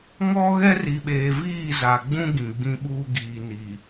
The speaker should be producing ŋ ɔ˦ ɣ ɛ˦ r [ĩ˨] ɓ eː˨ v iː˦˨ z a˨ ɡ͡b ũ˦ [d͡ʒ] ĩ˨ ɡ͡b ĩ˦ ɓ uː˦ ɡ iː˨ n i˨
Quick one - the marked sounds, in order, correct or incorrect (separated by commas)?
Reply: incorrect, incorrect